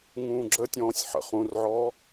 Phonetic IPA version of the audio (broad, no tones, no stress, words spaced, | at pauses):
ŋũːɡ͡ǁətʲɔ̃ːsʲ ħə̰ χũrʕɔː